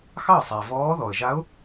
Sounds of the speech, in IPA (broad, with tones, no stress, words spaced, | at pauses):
xɑ˥˩sˤæ˩vɔː˧˥ ðɔ˩ə̯ʒa˧˥ʊ̯